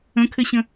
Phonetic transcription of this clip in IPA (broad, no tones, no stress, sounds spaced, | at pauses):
ə̃ kʰ ɘ ɕ ə̃